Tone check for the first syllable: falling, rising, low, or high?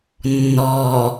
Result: low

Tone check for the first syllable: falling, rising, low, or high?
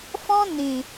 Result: high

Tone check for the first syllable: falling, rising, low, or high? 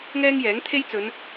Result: high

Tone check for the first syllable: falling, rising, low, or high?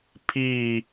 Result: falling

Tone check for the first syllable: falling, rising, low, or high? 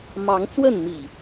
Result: rising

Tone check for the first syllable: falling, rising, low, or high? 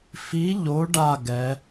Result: rising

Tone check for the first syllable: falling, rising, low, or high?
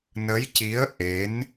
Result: rising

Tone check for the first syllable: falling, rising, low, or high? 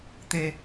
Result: low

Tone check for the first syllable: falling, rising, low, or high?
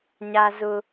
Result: high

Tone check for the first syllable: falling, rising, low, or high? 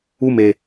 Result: high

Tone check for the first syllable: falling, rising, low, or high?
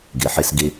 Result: low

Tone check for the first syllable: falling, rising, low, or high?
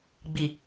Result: low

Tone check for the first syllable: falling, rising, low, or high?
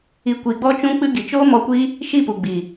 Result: rising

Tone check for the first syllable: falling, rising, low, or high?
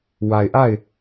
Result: low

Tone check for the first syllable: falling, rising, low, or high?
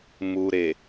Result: low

